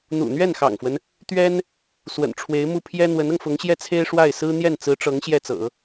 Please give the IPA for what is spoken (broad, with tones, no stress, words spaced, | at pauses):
n̪ṵ˨˩n̪ɥɛ˥˩nxɑ̰˨˩ŋfwə˦n | t̪ɥɛ˥n | swə̰˨˩nʈ͡ʂʰwe˧˥ɪ̯mu˥˩ pʰjɛ˥ n̪wə˧˥nɤ˧ŋfʊ˧˥ŋɕjɛ˥˩ t͡sʰe˥ɪ̯ʂwa˥˩ɪ̯ sɹ̩˥n̪jɛ˥˩nt͡sɹ̩˧˥ʈ͡ʂɤ˧˥ŋ ɕjɛ˥˩t͡sɤ̰˨˩˦